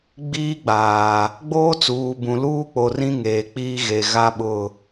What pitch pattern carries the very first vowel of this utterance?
high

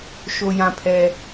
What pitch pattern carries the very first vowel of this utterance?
low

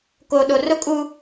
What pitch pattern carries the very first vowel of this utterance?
low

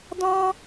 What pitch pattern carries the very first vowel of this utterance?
high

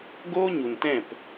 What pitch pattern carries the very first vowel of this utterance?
high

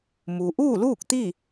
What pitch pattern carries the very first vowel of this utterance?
low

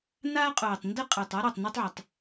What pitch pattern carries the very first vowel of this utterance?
high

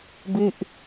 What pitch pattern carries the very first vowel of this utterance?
falling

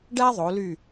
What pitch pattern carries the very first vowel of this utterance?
high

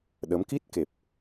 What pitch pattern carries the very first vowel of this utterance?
rising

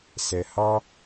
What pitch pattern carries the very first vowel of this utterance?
low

